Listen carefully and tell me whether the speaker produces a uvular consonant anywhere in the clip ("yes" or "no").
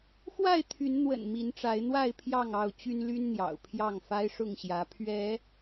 no